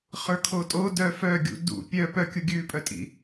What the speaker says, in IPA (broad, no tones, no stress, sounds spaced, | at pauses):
χ ə˞ kʰ o tʼ o d œ f œ ɡʲ ṵ d ṵ pʲ œ p œ kʲ u ɡʲ ʉ pʼ œ tʼ ḭ